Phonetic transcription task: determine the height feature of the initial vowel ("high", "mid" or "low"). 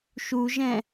high